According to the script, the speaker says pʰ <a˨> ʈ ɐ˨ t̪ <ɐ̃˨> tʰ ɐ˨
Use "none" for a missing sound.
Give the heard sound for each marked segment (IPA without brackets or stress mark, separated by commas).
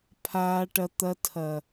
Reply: aː˨, ɐ˨